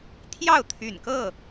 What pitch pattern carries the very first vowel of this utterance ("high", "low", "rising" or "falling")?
falling